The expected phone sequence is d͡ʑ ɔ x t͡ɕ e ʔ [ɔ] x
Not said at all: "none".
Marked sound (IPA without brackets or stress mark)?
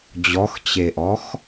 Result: ɔ